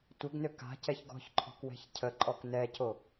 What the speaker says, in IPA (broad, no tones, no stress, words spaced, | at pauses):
tʷəɡnø ka̤cɛç ɡɔ̤çǃʰɔ̤kwɛ̤ç cʰəǃʼɔk nɛco